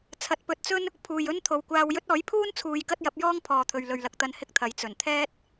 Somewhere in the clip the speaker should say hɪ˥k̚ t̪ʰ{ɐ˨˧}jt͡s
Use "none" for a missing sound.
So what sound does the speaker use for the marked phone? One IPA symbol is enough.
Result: ɐ˨˧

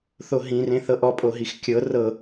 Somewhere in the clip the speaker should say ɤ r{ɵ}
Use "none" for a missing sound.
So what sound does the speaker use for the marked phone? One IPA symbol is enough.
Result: ɤ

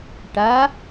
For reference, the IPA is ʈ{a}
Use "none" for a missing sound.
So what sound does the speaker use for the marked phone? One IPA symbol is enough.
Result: a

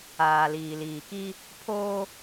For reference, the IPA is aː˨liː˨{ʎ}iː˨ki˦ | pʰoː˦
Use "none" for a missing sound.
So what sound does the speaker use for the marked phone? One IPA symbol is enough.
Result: l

